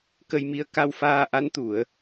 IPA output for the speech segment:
k ə˧ j m i˧ ə̯ k a˧ w f aː˧ ʔ a˧˥ n t̪ u˨˩˨ ə̯

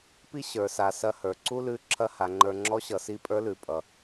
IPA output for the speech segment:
p i˥ ɕ ə˞˩˧ s a˩˧ s ɐ˧ h ə˞˩ ǀ u˥ l ʉ˧˥ ǁʰ ɐ˧˥ h a˩˧ ŋ͡ǃ ə˞˧ ŋ͡ǁ ɔ˧˥ ɕ ʌ˩˧ s i˧˥ pʼ ə˞˧˥ l ʉ˩˧ pʼ ʌ˩

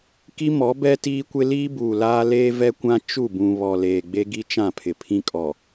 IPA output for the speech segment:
k i˦ m ɔ˨˦ b ɛ˦ t iː˦ kʷ ɪ˦ l iː˦ b uː˨ l aː˦ l eː˦ v ɛ˦ kʷ ã˦ t͡ʃ u˦˨ b ũ˨ β ɔ˨ l eː˨ ɡ͡b e˦ ɡ i˦ t͡ʃ ã˦˨ pʰ ɪ˨ pʰ ĩ˦ kʼ ɔ˨

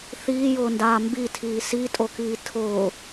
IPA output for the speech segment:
θ iː j ʊː n d aː m b i tʰ iː s i tʼ o k iː tʰ ʊː

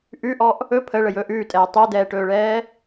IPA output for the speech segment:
ʔ ʉ ʔ ɔ ʔ | ɵ pʰ ə ɭ ə j ɵː ʔ ʉː tʼ ɛː tˤ o d ɛː ʈ ɵː ɭ ɛː

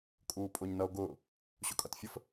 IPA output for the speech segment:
kʼ uː pʼ ʊ ɲ n ʌ o̯ ɡ ʊː | ɕ ʊ kʼ ʌ t fʲ ə f

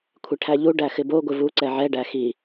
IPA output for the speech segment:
kʷʰ ɪ ʈʰ æ ʎ u ɖ æ x ɪ b o ɡʷ ɪ v u ǀ ɛ ʕ ɛ ɖ æ x i

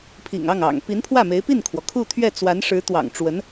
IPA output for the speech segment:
pʰ ḭ˨˩ ŋ ɑ˥˩ ŋ ɑ̰˨˩ ŋ p i˧˥ n pʰ w ä˥˩ m e˧˥ ɪ̯ p i˥˩ n kʰ w ɔ˩ kʰ u˥˧ t̪ʰ ɥ ɛ˥˩ t͡s w a˧˥ n ʂ ɻ̩˧˥ t̪ w ɑ̰˨˩ ŋ ʈ͡ʂ w ə˧˥ n

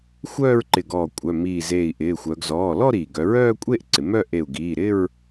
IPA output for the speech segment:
xʷ œː˥˧ ɹ ǃ ɪ˧˩ ɡ ɔː˧˩ kʷʼ œ˩˧˩ m iː˧˩ z eː˧˩ i̯ ʔ ɪː˩˧˩ xʷ œ˩˧ ɡ z ɔː˩˧˩ l ɔ˥˧ ɾ iː˩ ɡ œ˩˧ ɹ œː˥˧ kʷʼ e˥˧ ʔ ǀ ɪ˩˧ m œ˥˧ ʔ e˧˩ u̯ ɡ iː˩˧˩ ɾ ɪ˥˧ ɹ

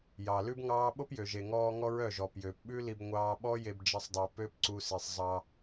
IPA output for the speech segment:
j ɑ˨ l ʉ˦ b ŋ ɑː˦ ɓ o˦ p j ø˨ ʒ e˨ ŋ ɔː˧ ŋ ɔ˦ ɹ œ˦˨ ʒ ɔ˨ p j øː˨ p ɓ ʉ˦ l i˧ b ŋʷ ɑː˧ ɓ ɔ˦ j e˧ b d͡ʒ e˧ sˤ dˤ ʉ˨ p ø˦ p ǀ u˧ s i˨ sˤ zˤ ɑ˧

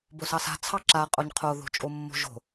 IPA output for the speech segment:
b o s ɑ s a̤ t͡sʰ ɑ ǁ a qʼ o ɲ qʰ o ð o̤ t͡ʃʼ o mː o̤ ʒ o̤

